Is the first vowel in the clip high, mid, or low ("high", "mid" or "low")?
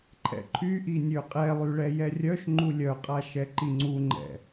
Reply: mid